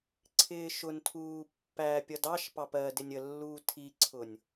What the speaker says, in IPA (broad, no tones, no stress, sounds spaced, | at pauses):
ǀʰ ɪː ʃ ʊ n tʰ uː pː æ pʲ ʌ d ɑ ʃ p ɑ p ɜ d ɪ nʲ ə lː uː tʰ i ǀʰ ʊ nʲ